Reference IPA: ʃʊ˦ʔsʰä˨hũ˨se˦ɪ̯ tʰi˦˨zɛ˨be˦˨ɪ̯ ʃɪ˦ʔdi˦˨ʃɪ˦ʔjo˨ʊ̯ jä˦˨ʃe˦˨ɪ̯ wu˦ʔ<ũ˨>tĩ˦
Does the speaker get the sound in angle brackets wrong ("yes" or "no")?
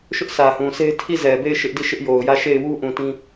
no